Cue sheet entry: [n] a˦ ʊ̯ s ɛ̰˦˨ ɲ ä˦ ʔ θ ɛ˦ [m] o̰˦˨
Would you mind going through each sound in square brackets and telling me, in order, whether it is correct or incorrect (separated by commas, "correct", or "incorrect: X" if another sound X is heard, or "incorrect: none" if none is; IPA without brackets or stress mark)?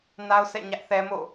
correct, correct